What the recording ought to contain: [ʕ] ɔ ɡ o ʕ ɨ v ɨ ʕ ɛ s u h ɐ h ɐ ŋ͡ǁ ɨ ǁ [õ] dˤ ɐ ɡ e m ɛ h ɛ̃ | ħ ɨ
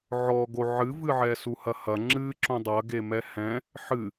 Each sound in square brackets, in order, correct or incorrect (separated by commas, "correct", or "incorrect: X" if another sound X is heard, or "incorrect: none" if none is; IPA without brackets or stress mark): correct, correct